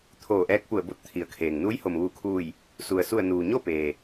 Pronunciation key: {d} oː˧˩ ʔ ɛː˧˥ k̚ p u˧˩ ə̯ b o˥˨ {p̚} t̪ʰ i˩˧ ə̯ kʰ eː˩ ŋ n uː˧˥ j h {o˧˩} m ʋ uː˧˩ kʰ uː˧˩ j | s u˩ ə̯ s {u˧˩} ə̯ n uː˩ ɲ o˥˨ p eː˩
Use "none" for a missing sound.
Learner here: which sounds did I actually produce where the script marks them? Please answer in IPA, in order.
t̪ʰ, t̚, o˩, u˧˩

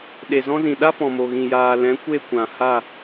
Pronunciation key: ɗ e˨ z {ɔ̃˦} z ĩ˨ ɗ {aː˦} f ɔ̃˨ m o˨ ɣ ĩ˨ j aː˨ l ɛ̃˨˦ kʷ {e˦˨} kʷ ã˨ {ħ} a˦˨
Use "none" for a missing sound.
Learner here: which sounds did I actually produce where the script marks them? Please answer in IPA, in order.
ɔ̃˦, a˦, e˦˨, h

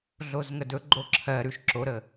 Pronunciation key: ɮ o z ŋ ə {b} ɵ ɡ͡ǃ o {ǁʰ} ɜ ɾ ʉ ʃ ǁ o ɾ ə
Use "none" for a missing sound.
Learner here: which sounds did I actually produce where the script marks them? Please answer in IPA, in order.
d, ǁʰ

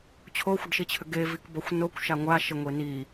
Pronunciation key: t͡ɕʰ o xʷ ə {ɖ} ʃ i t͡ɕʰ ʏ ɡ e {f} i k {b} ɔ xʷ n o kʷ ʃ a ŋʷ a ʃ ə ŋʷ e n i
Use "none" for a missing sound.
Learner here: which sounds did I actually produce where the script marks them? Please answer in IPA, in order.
ɖ, v, b

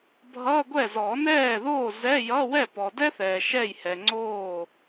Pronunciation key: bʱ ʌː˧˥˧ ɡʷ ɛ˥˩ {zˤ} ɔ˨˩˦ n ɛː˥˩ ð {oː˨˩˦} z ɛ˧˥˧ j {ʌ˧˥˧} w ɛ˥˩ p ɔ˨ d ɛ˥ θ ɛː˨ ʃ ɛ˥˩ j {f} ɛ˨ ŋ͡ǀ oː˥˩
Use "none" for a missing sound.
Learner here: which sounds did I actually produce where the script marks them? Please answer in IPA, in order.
z, oː˥˩, ʌ˧˥˧, h

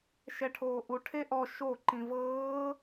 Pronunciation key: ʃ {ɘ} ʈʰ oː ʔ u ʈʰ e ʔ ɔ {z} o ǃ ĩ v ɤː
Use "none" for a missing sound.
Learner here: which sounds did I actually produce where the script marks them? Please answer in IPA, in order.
ɛ, ʃ

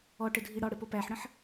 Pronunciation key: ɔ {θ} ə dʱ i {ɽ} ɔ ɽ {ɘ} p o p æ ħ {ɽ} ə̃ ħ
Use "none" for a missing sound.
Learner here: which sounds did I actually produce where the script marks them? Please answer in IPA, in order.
ʈ, ɽ, ɘ, ɽ

